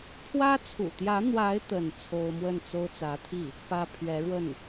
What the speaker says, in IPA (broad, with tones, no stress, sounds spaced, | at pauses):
pʰ w ä˥ t͡sʰ ṵ˨˩ t̪ j ä˧˥ n̪ w a˧˥ ɪ̯ t̪ ə˥˩ n t͡sʰ o˥ ʊ̯ m w ə˥˩ n t͡s o˥ ʊ̯ t͡s ä˧˥ t̪ʰ i˥˩ | p ä˥ pʰ ɥ ɛ˧˥ ɻ w ə˥˩ n